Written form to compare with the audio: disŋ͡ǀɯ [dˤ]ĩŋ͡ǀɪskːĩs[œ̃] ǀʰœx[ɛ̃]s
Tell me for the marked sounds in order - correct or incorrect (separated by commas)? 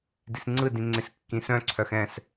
incorrect, correct, correct